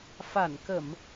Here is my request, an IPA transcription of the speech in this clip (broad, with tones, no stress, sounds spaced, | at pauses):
f a˧˩ n k ə˧˩˨ m